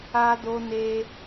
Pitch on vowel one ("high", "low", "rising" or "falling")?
high